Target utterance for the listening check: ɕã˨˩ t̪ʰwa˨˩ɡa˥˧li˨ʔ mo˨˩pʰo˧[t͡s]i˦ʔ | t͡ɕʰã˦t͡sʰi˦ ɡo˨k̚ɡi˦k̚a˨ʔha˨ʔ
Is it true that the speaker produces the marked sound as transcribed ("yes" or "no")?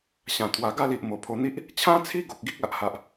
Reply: no